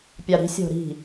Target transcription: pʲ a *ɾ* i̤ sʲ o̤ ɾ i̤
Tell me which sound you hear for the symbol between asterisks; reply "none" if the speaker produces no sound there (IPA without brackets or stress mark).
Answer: ɾ